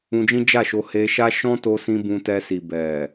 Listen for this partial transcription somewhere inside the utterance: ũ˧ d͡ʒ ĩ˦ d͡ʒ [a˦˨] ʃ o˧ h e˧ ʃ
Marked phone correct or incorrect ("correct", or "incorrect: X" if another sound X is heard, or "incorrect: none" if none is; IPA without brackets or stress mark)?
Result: correct